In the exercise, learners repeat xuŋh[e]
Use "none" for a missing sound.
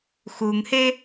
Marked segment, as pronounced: e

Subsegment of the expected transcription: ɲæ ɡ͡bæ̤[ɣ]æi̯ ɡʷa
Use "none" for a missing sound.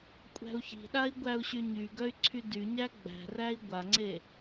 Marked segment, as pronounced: r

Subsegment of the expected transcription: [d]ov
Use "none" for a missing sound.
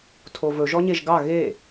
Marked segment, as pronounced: tʰ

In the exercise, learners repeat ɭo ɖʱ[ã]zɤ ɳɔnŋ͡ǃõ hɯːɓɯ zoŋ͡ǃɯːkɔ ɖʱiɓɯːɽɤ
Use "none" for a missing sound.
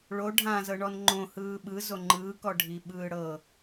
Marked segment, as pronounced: ã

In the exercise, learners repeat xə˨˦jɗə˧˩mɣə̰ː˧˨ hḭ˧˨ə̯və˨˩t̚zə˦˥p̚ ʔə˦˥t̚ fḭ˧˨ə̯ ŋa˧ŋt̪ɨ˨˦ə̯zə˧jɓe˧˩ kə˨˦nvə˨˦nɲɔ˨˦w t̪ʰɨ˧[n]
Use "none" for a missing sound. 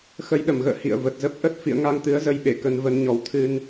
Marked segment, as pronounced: n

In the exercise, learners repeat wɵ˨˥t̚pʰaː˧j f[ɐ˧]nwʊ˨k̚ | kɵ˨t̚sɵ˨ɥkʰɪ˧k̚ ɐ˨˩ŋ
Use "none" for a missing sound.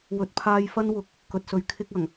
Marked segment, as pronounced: ɐ˧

